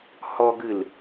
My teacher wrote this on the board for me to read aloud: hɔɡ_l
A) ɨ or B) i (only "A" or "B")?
A